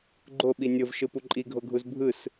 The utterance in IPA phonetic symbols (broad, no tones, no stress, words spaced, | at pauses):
ɡ͡ǃoɓi nʲɤvʃɯpu ǃʼiɡʱoɡʱuz bʱɯs